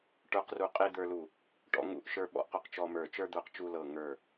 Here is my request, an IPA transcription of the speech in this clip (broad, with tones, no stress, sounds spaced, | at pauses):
ʈ ə˞˧ q r u˧˩ qʼ e˧ d̪ ə˞˧ l u˧˩ | ʈ ɔ̰˧ ŋ ṵ˧ ʔ ʃ ə˞˧ ɓ ɔ̰˧ ʔ q u˧ q t͡ʃ ɔ˧ m ə˞˧˩ t͡ʃ ə˞˧ d̪ ə˞˧˩ q t͡ʃ u˧ l ɤ˧˩ ŋ ə˞˧˩